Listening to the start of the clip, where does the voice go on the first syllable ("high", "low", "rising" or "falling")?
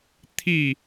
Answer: falling